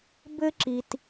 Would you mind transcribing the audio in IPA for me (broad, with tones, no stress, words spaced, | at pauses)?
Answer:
bɘ˥ǁi˧t